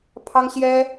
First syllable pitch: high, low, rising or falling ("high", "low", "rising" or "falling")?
high